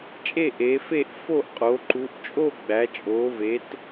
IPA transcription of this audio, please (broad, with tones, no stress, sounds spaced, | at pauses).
t͡ʃʼ e˦˨ ʔ e˩˧ f e˦˨ ʔ f o˦˨ ʔ qʼ o˩˧ ǃ u˩˧ ʔ t͡ʃʼ o˦˨ ɡ͡b æ˩˧ t͡ʃʼ o˩˧ v e˩˧ t